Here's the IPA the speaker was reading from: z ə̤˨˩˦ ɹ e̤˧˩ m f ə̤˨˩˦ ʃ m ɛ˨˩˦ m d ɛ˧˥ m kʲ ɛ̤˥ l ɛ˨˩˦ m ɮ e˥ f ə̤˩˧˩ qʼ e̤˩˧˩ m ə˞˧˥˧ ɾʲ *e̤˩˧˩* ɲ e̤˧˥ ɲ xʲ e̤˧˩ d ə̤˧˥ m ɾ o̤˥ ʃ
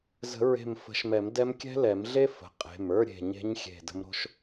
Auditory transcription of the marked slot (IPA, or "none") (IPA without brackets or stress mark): e̤˧˩